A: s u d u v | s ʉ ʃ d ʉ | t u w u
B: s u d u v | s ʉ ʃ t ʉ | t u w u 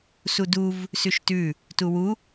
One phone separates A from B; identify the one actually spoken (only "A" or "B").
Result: B